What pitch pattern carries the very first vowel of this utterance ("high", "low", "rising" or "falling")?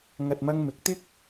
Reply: low